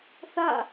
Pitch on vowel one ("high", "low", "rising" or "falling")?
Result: falling